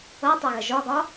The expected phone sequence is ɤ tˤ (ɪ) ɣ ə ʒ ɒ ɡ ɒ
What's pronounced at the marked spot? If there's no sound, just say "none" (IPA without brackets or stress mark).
ɛ